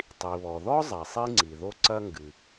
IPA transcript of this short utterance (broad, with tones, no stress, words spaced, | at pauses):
tˤi˩βɔ˩ðɔ˥ zˤɛ˩sˤi˥ŋ͡ǀi˩ðo˥ ǀɐ˥ŋɡɨ˩